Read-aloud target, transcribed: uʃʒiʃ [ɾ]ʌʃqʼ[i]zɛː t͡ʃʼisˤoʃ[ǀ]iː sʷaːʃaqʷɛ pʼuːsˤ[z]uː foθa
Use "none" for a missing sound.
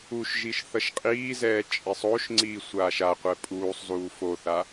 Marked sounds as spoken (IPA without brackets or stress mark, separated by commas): θ, iː, ŋ͡ǀ, z